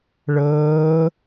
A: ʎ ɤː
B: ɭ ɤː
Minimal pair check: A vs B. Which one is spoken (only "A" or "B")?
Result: B